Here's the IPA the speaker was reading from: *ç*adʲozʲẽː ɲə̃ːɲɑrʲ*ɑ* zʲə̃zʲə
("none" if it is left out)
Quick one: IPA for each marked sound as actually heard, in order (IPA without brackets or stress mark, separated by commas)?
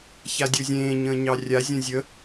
ç, a